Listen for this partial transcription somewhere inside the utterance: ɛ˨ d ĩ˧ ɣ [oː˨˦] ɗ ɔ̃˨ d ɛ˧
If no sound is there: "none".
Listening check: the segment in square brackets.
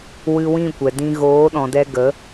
oː˨˦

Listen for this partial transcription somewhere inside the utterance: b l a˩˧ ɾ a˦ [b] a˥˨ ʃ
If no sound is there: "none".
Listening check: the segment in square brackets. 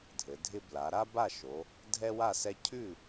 b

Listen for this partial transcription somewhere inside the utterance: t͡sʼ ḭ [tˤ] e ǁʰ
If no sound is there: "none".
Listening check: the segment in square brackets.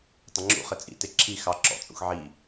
t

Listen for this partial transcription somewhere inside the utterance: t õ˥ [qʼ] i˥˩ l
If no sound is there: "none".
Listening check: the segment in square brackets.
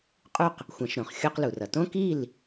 k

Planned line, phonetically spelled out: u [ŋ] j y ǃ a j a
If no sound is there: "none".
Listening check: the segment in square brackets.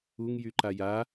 ŋ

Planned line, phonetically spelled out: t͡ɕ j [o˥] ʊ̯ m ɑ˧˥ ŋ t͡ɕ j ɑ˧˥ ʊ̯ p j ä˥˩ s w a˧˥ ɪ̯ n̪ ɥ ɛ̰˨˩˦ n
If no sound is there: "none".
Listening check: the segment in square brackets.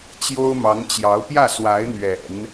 o˥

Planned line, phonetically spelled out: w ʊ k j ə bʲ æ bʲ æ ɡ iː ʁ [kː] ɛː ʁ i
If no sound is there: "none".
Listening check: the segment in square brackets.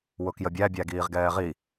ɡ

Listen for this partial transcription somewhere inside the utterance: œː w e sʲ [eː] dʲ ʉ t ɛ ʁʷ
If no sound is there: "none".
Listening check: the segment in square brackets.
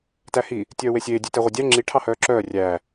eː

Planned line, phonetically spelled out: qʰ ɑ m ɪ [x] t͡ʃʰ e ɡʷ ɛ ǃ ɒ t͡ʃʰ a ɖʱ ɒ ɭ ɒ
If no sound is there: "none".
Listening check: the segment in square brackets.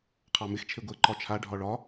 x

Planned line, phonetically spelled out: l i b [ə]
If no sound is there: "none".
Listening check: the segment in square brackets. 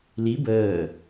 əː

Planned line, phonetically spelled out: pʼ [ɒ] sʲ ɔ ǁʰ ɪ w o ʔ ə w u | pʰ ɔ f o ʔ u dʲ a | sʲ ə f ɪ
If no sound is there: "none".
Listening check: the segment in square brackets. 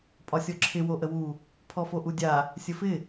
ɒ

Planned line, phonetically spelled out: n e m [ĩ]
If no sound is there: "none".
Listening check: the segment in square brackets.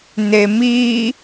i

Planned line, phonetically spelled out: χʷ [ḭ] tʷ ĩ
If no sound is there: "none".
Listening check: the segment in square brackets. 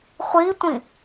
i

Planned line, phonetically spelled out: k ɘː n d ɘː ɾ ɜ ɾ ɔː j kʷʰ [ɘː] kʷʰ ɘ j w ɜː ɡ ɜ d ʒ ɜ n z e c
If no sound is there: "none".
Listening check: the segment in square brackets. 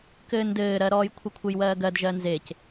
ɘ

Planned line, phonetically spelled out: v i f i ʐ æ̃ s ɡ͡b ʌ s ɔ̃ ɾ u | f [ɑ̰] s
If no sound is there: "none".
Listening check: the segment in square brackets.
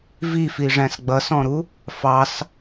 ɑ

